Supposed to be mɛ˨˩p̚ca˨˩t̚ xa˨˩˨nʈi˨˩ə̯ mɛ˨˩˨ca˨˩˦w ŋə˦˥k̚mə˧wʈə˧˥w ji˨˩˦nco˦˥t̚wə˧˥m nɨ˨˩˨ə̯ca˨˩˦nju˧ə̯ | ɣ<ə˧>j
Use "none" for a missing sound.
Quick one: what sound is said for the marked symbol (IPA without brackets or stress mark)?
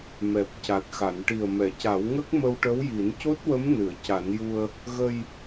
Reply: ə˧